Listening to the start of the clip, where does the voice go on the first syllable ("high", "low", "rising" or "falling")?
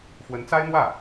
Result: rising